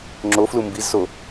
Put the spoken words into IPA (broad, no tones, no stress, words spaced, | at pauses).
ŋ͡ǁoflu mbizso